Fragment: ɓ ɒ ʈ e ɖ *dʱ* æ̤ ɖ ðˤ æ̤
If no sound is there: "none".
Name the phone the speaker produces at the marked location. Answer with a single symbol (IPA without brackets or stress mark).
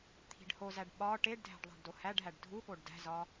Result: dʱ